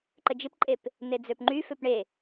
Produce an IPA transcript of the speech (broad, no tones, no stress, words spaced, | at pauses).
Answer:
ǃəd͡ʒɪpǃʼep | ned͡zøpŋ͡ǃy føpɳe